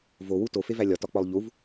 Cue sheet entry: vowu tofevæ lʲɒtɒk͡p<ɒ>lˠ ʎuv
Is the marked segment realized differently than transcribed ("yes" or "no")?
no